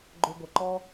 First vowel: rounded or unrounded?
rounded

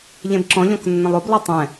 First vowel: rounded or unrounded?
unrounded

